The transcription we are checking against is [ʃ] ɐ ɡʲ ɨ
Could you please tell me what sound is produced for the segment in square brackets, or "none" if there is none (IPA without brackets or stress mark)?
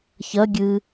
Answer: ç